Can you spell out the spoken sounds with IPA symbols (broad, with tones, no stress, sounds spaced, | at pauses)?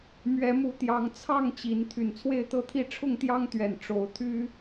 m ɥ ɛ˨˦ m u˨˦ t̪ j ɑ˨˦ ŋ t͡sʰ ɑ˥˨ ŋ t͡ɕ i˨˦ n t̪ʰ y˨˩ n t͡sʰ w e˥˨ ɪ̯ t̪ ɤ˥˨ t̪ʰ i˥˨ ʈ͡ʂʰ ʊ˥˨ ŋ t̪ j ɑ˦ ŋ t̪ ɥ ɛ˨˩ n ʈ͡ʂ o˨˦ ʊ̯ t̪ʰ y˦